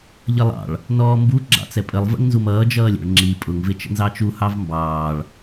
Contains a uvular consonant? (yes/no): no